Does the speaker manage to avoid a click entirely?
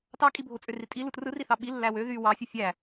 yes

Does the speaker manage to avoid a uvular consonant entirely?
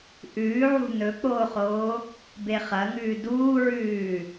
no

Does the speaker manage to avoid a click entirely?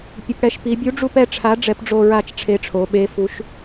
yes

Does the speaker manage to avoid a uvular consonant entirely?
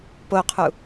no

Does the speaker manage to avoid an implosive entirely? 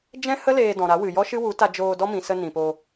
yes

